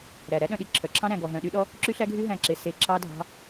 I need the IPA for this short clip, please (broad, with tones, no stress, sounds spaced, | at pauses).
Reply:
ɾ æ˨ ɾ æ˦ ɗ œ̃˧ ɗ i˧ ǁʰ œ˨ ǁʰ ɑ̃˦ ɾ æ̃˧ ɡ ɔ˧ ɦ œ̃˧ ɗ y˦ ɗ ɔ˦ | ǁ y˦ ɬ æ˦ ɡʱ y˦ ɦ æ̃˦˨ ǁ e˧ s e˧ ǁ ɑ˦ dʱ ɑ̤˦